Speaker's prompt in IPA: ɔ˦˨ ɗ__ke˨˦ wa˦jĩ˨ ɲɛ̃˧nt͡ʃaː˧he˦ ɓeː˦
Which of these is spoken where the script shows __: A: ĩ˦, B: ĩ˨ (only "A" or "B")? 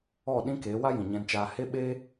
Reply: A